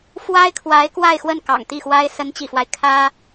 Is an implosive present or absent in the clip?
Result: absent